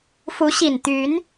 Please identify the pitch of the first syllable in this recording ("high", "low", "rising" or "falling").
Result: rising